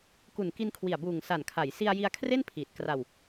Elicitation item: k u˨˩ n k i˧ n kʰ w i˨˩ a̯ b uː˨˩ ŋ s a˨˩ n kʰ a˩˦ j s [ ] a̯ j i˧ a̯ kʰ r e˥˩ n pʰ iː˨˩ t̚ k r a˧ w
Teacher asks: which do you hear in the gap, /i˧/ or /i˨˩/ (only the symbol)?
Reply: i˧